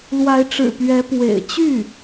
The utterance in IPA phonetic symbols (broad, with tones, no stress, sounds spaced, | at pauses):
l w a˧˥ ɪ̯ ʈ͡ʂ ɻ̩˨˩ p ɥ ɛ˧˥ p w ḛ˨˩ ɪ̯ t͡ɕ y˥˩